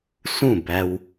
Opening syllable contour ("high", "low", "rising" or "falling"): falling